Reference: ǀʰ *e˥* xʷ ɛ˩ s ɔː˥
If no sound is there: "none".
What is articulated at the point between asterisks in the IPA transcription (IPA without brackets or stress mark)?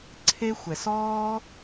e˥